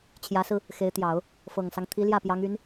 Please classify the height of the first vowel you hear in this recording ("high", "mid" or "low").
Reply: low